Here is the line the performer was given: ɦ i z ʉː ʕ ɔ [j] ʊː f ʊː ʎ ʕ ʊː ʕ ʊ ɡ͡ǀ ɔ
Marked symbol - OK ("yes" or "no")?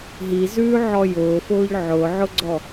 yes